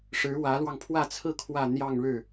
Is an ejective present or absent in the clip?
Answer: absent